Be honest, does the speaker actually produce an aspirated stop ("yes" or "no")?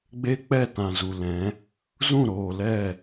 no